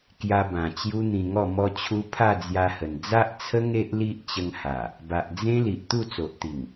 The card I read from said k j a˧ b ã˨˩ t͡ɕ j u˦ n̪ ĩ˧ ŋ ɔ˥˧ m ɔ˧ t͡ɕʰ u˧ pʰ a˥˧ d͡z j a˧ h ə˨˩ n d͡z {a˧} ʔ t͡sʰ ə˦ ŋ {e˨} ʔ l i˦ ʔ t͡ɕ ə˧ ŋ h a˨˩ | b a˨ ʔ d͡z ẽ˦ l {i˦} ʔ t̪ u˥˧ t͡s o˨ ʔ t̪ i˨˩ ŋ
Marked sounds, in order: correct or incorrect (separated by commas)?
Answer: incorrect, incorrect, incorrect